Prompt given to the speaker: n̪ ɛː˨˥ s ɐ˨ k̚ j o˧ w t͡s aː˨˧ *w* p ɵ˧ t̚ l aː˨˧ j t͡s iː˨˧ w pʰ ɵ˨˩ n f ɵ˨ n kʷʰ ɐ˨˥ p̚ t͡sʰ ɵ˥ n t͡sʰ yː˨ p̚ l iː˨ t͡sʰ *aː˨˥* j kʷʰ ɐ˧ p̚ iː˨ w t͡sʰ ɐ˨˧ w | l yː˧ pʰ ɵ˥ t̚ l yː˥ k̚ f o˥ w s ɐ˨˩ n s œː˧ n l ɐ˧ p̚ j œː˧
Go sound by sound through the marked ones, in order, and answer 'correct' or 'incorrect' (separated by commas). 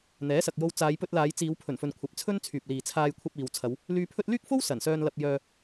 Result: incorrect, incorrect